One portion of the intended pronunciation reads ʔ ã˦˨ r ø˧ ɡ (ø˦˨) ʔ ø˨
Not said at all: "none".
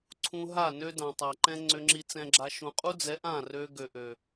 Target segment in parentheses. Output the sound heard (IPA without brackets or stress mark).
ø˨